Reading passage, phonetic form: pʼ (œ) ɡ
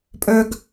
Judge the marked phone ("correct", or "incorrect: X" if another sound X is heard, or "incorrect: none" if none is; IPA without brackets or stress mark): correct